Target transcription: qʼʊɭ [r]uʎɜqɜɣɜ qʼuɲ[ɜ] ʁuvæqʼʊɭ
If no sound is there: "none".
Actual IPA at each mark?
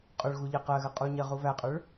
ɣ, ɜ

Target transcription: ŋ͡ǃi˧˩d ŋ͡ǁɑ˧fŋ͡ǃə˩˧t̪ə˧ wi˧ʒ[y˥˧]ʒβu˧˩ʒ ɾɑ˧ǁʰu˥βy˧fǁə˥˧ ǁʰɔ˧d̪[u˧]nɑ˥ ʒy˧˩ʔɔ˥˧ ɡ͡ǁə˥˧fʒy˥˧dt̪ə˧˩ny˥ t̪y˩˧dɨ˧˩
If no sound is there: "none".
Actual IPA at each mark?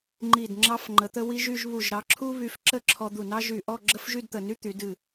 y˥˧, u˧˩

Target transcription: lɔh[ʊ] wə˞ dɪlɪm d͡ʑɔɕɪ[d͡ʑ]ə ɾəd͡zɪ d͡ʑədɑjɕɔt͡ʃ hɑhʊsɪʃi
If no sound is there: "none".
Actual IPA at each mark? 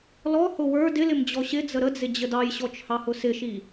ʊ, d͡z

